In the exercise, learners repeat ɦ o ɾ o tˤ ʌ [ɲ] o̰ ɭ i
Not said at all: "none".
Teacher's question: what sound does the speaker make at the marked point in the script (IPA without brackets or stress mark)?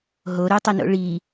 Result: n